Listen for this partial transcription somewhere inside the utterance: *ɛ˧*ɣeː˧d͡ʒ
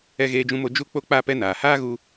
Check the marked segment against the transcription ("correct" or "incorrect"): correct